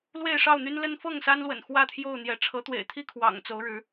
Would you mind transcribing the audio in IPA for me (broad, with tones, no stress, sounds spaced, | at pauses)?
l w e˥˨ ɪ̯ ʂ ɑ˥˨ ʊ̯ n̪ y˦ n l ə˦ n f ɤ˥˨ ŋ s a˦ n l w ə̰˨˩ n x w ä˥˨ t̪ʰ j o˥˨ ʊ̯ n̪ j ɛ˨˦ ʈ͡ʂʰ ɤ˨˦ t̪ w ḛ˨˩ ɪ̯ t̪ʰ i˥˨ kʰ w ɑ̰˨˩ ŋ t͡s o˨˦ ʊ̯ ɻ ɻ̩˨˦